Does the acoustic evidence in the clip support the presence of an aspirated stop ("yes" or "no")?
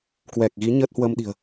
no